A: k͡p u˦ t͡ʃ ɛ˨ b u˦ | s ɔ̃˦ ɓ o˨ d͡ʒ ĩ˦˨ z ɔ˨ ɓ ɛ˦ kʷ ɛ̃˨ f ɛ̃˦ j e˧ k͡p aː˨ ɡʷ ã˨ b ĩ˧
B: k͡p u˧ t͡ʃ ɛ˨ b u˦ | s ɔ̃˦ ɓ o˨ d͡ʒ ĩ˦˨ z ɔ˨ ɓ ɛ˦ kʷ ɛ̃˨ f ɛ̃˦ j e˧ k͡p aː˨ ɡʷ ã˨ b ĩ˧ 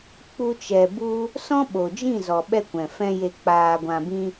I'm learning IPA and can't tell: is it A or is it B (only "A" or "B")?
B